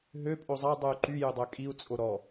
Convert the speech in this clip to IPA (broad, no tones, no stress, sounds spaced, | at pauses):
ɦ ø pʼ o zˤ ɑ dˤ u y̯ ǃ y j y dˤ ø kʼ i u̯ t͡sʼ o ɾ ɔ